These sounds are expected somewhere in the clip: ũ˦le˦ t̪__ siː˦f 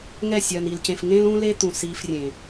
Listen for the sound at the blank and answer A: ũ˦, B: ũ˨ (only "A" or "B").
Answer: B